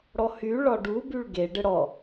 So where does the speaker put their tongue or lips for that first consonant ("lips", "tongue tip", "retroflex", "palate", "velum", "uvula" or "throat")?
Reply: retroflex